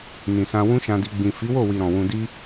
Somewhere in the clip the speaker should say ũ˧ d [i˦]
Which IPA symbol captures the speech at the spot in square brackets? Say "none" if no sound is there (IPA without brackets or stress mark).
i˦